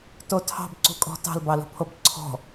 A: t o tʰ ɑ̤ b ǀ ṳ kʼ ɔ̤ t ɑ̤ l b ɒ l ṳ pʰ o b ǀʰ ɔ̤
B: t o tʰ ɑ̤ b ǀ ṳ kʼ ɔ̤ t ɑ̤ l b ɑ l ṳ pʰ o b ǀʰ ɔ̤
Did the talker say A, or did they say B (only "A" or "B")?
B